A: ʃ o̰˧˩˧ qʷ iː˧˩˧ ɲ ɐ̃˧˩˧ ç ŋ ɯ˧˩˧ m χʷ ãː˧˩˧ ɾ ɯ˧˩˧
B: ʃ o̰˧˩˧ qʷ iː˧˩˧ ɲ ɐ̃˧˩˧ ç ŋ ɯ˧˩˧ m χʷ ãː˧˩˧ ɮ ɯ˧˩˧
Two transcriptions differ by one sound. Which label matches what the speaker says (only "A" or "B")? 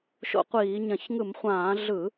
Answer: B